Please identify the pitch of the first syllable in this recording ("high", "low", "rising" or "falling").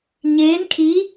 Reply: rising